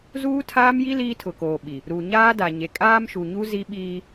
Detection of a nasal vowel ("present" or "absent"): absent